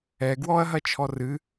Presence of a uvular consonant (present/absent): absent